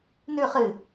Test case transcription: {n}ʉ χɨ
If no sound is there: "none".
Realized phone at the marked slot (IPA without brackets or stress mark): n